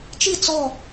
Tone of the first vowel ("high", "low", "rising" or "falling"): falling